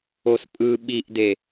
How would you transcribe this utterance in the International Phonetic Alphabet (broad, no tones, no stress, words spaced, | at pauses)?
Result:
ospʼɯ ɓiʔde